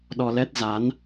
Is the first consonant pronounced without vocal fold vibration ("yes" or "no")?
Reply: no